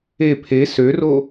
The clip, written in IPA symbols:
e pʰ e s ø r o

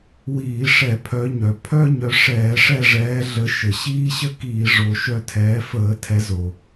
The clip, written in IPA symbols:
w iː˧˩˧ ʂ ɛ˧˩˧ pʰ œ˨˦ ɲ œ˩ pʰ œ˥ ɲ œ˨˦ ʂ ɛː˧˩˧ ʂ ɛ˦˨ ʐ ɛː˨˦ ɮ ə˨˦ ʃ ə˩ ɕ iː˥ ɕ ə˥ k iː˧˩˧ ʐ o˨˦ ʃ œ˦˨ tʰ ɛː˨˦ f əː˧˩˧ tʰ ɛ˨˦ z o˩

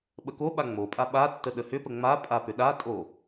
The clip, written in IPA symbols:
ɓ ə k o ɓ a ŋ͡m o pʼ a ɓ a tː ə ɗ ə h ʏ p ə ŋ͡m a pʼ a p ʏ ɗ a tʼ o

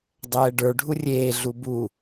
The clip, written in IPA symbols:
dˤ ɛː ɖ ə˞ ɖʱ u rʲ eː ɮ u b u

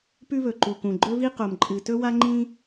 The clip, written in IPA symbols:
p ʉ˥ β ɵ˩ ǃ u˩ k ũ˩ ɡ͡ǃ ɵ˥ v i˥ q o˩ m ǃʼ ɨ˩ t ɵ˥ w a˥ ŋ͡ǃ ĩ˥

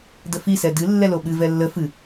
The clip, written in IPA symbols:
d ə f i s ɛ d ɨ lː ɛ l o ɓ ɨ v ɛ lː ə f ɨ

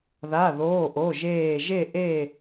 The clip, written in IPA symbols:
ð a˧˥˧ ð oː˧˥˧ ʔ o˧˥˧ ʒ eː˥˧ ʒ e˥˧ ʔ e˥˧

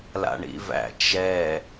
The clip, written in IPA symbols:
l a̰ ɳ ḭ v æ̰ t͡ʃ ɛ

